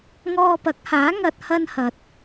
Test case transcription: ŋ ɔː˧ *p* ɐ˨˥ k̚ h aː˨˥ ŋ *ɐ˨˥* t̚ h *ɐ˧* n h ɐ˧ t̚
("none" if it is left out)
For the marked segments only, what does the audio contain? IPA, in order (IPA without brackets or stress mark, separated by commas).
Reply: p, ɐ˧, ɐ˥